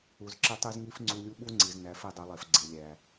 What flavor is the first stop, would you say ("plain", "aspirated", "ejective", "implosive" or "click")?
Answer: click